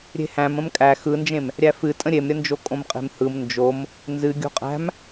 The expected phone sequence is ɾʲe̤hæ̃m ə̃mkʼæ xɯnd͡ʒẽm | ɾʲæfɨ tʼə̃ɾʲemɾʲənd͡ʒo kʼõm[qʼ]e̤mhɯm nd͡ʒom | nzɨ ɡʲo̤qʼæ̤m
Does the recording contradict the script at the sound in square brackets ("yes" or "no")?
no